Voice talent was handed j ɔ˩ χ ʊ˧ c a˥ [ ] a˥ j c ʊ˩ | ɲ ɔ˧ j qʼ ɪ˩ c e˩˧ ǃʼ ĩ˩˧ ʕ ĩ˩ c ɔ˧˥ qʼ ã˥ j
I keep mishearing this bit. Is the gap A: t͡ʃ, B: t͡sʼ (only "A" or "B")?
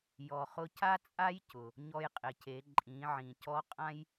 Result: B